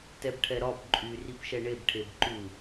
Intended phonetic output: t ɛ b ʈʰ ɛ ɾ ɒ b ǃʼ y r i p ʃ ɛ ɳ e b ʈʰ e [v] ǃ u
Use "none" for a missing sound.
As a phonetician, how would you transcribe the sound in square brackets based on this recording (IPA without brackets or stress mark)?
b